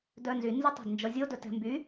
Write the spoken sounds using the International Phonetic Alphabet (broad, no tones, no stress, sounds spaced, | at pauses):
d œ n z y n z y tˤ ɑ̤ d n d͡ʒ ɔ zʲ o d ɵ t ɛ̤ m b y